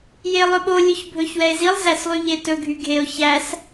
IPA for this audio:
jelˠɵɓo lʲɵçbʱɵçwɛe̯zilˠ zæslˠyʎetɵ ɡʱyɡʱeo̯ çæs

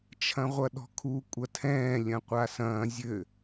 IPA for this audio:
t͡ʃʰɐ̃ʁʷɐɗɔ̤kʰu kʷʼɐtʰɛ̃ː lʲɐ̃qʷasɐ̃ː zʲɘ

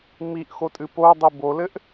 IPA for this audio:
miʔxotʼɨ podˤi bolɘʔ

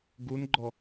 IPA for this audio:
ɡunɡ͡ǃɔ

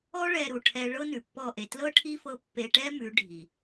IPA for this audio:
ɔ˦ ɭɛ˧ɾu˨ʈʰɛ˧ ɭɤ˦nʉ˨ pːɔ˦˨ʔe˧ tlɤ˦ʈʰi˦fɤ˧ pːe˧ʈɛ˦ mʉ˨˦ ɖʱi˨

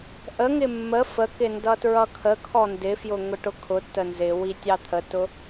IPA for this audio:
ʔəŋɪ mːə fəkɪ ndʌtɹʌkʰəkʰɔ ndɪfjʊ ŋʊʈʊkʰʊtːə nzɪ witʲɑt̪ʰətʊ

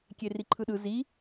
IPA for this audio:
kʲeriǃʰɯɗɯ zi

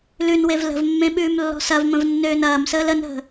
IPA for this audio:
lʉnwev lə̤vmːẽ ɓʉːmlːɔ̤sɐvmə̃v nːøːnɐːmsəːl ənɦə̤

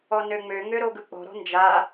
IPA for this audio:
ɔnøŋ͡mø ŋøɾoɡɯk͡pɔ̤ ɾɔ̤nd͡ʒa

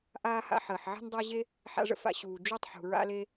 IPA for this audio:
ʔaː˥ha̰˥ ħəː˩ħʕe̤˥n dˤa˥ ʑe˥ | ħa̰˥ʐə̰˥fa̰˥ ɕuː˩ d͡ʒu˥tˤħṳ˩ɹa̰˥le˥

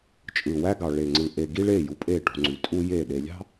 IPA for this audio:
t͡ʃʼɯ˨wæ˦ɡɑ˨ ɭe˨ŋ͡ǀɯ˨ ʔe˨ ɡi˦ɭe˦˨ju˨pʼe˦˨ ʈṳ˨ŋ͡ǀy˨tʼu˦ je˦˨ ɗe˨lʲɑ̤˦

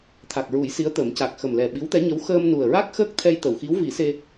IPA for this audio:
t̪ʰa˨˩k̚ɹu˨˩˦j si˧˥ə̯t̪ə˨˩˦m ca˨˩k̚ xə˨˩mlɛ˨˩ ɓi˧˥wt̪ɛ˧˥ɲə˧˥w xəː˧mnu˨˩ə̯ɹa˦˥k̚xəː˦˥k̚ t̪ʰɛ˧jt̪ə˨˩˨wxi˧˥w vi˨˩˦ se˧

